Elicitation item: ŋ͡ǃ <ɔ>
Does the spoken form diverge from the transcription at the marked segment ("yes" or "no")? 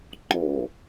no